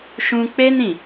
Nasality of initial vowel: nasal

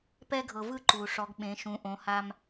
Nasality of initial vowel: oral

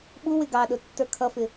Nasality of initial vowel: oral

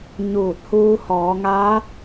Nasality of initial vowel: oral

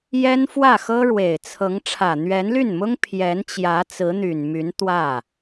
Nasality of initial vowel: oral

